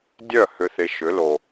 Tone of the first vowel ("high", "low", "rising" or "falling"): falling